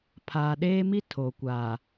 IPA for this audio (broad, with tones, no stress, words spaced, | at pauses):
pʰaː˨ɗeː˦mi˦ tʰo˨kʷaː˨